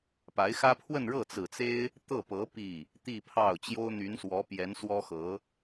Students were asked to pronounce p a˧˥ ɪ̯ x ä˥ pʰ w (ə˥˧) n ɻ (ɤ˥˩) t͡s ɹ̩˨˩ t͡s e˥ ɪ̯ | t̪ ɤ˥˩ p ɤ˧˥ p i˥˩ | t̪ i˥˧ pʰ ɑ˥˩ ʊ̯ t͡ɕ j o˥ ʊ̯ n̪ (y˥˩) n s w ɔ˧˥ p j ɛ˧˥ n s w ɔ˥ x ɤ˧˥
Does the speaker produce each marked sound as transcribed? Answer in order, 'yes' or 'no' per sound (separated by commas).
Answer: yes, yes, no